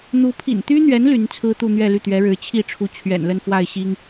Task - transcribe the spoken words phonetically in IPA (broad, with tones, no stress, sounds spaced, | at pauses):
n̪ u˧˥ pʰ ḭ˨˩ n t̪ y˥ n̪ ɥ ɛ˧˥ n l y˧˥ n t͡sʰ ɹ̩˥ t̪ u˥˧ n̪ ɥ ɛ˥˧ l y˥˩ t̪ ɥ ɛ˧˥ ɻ ɻ̩˧˥ t͡ɕʰ i˥˩ ʈ͡ʂʰ u˧˥ t͡ɕʰ ɥ ɛ̰˨˩ n l ə˥˧ n f w a˥˩ ɪ̯ ɕ i˥ ŋ